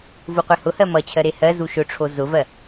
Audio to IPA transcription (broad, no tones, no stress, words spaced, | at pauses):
vuqʷehʊhɜ mʌt͡ɕʰɜ ɾehɜzu ʃʊʈ͡ʂʰo zʊvɜ